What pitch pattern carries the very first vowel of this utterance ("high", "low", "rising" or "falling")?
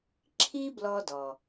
high